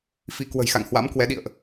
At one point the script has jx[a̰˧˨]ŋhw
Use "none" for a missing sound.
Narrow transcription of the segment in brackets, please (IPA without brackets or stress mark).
a̰˧˨